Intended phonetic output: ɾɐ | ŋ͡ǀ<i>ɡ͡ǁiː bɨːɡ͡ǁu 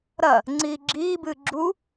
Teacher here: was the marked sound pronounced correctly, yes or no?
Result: no